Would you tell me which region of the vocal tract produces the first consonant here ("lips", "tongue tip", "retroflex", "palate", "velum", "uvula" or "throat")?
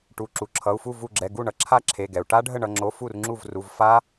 retroflex